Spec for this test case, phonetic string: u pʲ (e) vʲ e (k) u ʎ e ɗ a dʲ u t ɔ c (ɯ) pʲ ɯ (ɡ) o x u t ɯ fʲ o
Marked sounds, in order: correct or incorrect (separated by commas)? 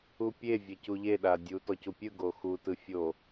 correct, incorrect, incorrect, correct